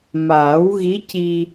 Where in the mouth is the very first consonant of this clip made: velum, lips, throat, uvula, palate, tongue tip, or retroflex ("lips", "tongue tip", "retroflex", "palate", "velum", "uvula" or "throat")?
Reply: lips